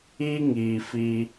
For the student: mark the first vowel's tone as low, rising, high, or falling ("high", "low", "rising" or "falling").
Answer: high